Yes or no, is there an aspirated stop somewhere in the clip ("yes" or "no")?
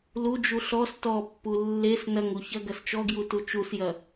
no